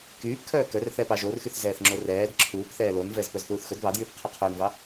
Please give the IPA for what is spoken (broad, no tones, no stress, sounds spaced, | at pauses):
k yː p kʰ œː k œ r θ ɛː p ɑ ʒ o r x y θ z ɛː θ ŋ͡ǁ o r ɛː d ǁʰ uː p θ ɛː l o n v ɛ z p œ z θ uː θ x ɵ d β ɑ d j yː p qʰ y qʰ ɵː n v ɑ